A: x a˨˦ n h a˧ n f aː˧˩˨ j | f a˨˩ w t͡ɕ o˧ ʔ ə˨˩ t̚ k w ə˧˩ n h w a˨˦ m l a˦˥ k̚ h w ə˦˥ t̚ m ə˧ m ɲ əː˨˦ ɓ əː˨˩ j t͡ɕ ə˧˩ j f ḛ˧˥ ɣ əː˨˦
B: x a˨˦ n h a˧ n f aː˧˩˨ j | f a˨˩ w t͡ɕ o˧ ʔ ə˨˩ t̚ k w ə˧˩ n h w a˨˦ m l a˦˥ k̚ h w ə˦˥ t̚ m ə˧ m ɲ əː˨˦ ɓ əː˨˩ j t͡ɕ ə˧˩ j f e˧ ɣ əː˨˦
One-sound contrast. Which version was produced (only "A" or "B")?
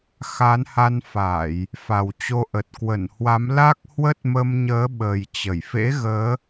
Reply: A